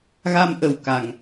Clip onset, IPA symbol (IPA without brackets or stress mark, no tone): ɣ